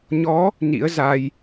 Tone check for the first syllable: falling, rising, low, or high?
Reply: rising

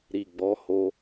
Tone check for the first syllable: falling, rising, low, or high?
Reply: low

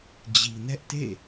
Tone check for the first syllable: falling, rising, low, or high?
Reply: low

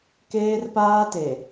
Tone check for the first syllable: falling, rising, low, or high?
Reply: high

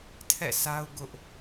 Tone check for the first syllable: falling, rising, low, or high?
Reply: falling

